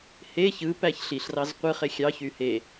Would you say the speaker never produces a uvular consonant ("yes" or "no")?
no